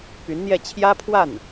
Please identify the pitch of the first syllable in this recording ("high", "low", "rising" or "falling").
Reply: rising